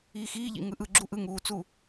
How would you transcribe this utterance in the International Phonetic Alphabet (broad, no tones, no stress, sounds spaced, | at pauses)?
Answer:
iː x iː ʎ ḭ ŋ ɯ ʔ ɯ ɡ͡ǁ u ʔ ɯ ŋ uː t͡s u